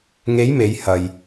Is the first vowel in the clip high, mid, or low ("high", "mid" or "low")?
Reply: mid